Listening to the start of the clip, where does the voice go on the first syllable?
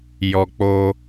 low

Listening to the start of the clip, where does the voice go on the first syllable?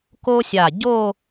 high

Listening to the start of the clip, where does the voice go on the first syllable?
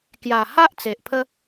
low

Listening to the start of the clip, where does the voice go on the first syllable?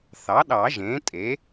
rising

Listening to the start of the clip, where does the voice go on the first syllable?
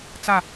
falling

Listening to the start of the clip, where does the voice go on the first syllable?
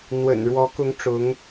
low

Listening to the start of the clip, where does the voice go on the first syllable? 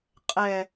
low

